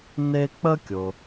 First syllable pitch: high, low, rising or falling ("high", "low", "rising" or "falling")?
high